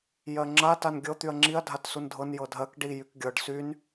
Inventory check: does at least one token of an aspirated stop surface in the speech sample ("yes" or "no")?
no